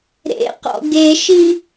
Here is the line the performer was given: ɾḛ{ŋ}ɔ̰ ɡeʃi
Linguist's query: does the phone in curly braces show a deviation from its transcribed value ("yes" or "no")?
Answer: yes